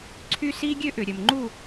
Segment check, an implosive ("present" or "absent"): absent